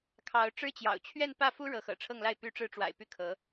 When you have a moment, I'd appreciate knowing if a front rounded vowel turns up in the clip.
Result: yes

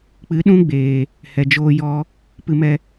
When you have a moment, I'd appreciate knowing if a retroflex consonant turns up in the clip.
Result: no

